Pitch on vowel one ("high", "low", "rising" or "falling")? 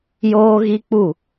high